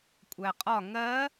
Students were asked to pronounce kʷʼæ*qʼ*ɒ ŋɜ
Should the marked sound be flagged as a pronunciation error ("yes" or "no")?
no